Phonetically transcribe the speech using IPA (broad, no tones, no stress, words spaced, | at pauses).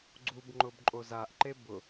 ɡ͡ǀubŋ͡ǃʊb ǃʼozaʔǃe bʊ